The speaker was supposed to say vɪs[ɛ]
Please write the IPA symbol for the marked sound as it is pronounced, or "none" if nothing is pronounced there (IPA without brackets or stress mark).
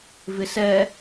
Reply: ɛ